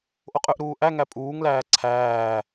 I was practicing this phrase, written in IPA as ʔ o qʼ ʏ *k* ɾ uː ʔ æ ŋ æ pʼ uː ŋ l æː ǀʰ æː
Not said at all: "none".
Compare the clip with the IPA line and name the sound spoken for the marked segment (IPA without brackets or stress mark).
ʔ